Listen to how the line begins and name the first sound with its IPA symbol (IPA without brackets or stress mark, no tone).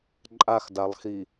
ǃʼ